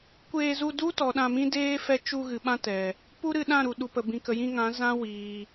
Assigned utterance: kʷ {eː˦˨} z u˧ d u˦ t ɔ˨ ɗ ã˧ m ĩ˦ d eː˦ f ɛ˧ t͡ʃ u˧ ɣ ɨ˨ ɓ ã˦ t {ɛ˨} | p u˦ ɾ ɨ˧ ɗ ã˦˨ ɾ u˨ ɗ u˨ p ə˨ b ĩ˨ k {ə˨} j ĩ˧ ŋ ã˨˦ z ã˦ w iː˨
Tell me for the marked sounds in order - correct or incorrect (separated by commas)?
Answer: incorrect, correct, correct